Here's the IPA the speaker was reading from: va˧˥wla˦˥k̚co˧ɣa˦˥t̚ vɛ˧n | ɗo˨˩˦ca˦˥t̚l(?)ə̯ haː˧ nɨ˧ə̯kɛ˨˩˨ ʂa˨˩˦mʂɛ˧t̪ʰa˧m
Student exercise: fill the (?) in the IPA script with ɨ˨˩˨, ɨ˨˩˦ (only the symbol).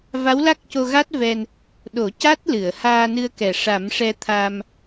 ɨ˨˩˨